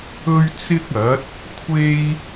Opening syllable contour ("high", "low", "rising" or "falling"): high